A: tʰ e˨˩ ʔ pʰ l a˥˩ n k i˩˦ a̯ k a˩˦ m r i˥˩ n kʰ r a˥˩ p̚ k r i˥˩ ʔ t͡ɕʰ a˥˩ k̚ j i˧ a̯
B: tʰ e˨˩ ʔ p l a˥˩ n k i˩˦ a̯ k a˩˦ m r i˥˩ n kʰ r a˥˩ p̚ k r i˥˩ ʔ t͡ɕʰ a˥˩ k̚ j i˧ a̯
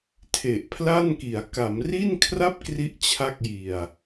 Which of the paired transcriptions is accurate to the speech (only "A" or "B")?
A